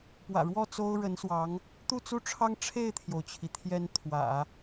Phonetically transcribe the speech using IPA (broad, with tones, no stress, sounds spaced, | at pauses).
p w ä̰˨˩ ɻ w ɔ˥˩ t͡s o˥ ʊ̯ ɻ ə˧˥ n s w ɑ˧˥ ŋ | t̪ u˥˧ t͡s u˥˩ ʈ͡ʂʰ ɑ˥ ŋ ʈ͡ʂʰ e˥˩ ɪ̯ t̪ʰ j o˩ ʊ̯ t͡ɕʰ i˩ t̪ʰ j ɛ˧˥ n t̪ʰ w ä̰˨˩˦